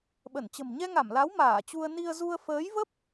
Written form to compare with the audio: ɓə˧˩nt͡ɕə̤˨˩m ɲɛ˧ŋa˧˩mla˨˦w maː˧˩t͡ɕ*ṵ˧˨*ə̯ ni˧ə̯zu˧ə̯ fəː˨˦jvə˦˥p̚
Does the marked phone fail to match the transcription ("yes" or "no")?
yes